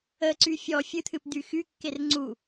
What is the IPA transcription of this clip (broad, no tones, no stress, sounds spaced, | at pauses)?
ə ǀ y fʲ ɔ fʲ ɨ t̪ʰ ɨ p d̪ y x y kː e r ŋ͡ǀ u